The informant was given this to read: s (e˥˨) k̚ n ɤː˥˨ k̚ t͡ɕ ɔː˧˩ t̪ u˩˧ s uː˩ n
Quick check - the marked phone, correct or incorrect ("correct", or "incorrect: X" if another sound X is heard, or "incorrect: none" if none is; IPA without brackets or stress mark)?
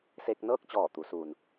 incorrect: e˧